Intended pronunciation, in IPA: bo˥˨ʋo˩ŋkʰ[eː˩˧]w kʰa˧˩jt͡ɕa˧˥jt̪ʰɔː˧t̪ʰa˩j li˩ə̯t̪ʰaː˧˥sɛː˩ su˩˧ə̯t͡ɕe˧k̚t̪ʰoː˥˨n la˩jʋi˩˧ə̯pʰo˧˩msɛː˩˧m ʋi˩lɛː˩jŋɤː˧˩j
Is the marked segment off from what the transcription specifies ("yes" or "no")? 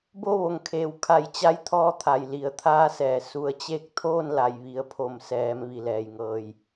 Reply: no